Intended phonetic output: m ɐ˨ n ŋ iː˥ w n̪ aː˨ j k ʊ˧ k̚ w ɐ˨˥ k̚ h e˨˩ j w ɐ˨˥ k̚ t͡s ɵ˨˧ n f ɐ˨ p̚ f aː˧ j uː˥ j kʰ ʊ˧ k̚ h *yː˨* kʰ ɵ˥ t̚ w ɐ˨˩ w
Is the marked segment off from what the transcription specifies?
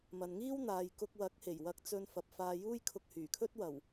yes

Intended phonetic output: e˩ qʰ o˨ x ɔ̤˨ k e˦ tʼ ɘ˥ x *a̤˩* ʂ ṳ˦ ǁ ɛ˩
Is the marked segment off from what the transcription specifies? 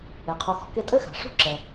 no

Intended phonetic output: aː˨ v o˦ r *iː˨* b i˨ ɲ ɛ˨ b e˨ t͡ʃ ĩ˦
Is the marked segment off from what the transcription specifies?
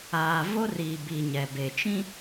no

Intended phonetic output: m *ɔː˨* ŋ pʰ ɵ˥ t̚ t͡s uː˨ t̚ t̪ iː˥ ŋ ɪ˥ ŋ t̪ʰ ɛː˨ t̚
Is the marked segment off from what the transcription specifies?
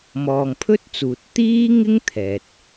no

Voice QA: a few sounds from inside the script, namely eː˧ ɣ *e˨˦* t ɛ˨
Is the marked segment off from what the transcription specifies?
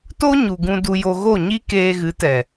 yes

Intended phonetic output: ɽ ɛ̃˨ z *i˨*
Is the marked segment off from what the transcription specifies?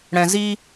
yes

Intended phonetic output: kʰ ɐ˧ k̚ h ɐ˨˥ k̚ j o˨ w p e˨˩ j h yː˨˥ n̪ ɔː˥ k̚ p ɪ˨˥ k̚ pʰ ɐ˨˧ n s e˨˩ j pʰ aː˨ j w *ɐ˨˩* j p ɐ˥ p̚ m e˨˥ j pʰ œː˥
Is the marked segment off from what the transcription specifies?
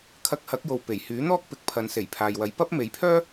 yes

